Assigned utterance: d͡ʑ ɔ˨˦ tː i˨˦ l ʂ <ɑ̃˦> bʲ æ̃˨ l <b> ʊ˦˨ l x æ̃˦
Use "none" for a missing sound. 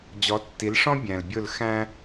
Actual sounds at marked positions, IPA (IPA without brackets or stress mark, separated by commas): ɔ̃˦, bʲ